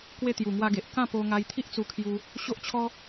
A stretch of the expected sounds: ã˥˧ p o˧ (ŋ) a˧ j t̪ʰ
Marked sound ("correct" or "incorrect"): correct